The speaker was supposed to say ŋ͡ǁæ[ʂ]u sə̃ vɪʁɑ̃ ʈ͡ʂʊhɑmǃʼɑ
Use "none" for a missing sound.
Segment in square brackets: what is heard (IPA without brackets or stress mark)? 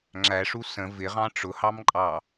ʂ